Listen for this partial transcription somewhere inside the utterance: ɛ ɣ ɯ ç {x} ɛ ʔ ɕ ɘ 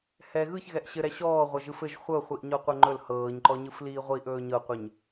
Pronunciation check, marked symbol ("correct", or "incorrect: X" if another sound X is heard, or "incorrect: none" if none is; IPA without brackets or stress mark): incorrect: ɣ